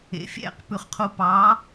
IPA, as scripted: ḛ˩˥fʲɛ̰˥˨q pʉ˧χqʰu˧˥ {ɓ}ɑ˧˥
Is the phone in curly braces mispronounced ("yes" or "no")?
yes